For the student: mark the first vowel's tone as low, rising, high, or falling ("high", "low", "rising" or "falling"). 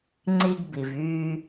high